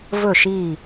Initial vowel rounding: rounded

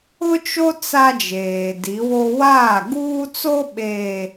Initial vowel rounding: rounded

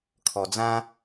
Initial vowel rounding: rounded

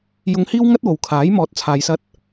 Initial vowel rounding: rounded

